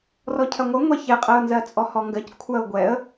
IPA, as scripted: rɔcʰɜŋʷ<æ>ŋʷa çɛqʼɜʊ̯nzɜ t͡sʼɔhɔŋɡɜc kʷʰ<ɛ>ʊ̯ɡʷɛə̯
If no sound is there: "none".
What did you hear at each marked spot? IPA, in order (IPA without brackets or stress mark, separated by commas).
ɜ, ɜ